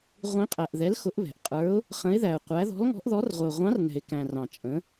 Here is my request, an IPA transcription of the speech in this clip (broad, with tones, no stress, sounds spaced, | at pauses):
ʁʷ ĩ˧˥ qʼ æ˨ ʔ ð ɛ˧˥ l x ʊ˧˥ ʔ β ɛ̤˨ ʔ qʼ ə˞˧˥ ʊ̯ | χ ə̃˧˥ ɪ̯ ð æ˨ ʊ̯ qʷ æ˧˥ ð ɔ̤˧˥ l ŋ ɔ̤˧˥ ʔ ð ɔ˧˥ r ʁʷ ɛ˨ ʊ̯ ʁʷ ɑ̃˧˥ r n ɛ̤˨ ɪ̯ k æ̃˨ r ɑ̃˨ t͡ʃʼ ə̃˧˥